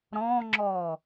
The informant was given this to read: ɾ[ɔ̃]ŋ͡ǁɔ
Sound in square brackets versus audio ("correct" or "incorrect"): correct